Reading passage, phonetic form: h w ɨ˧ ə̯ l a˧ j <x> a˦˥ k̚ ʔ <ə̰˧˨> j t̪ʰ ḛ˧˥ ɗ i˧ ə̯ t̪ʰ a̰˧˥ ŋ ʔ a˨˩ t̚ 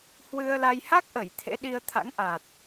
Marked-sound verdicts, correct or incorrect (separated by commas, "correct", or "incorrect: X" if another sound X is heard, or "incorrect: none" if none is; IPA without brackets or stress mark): incorrect: h, incorrect: ə˧˩